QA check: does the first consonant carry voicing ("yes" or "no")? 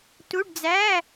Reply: no